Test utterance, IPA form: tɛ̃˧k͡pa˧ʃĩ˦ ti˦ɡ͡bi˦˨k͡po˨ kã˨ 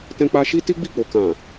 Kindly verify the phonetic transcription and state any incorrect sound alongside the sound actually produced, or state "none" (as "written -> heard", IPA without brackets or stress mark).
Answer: ĩ˦ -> i˦